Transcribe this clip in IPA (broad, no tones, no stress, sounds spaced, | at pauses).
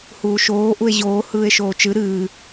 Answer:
h uː ʃ oː ʔ u e̯ ʑ oː h ɯː e̯ ʃ oː t͡ʃ ɨ ɾ ɨː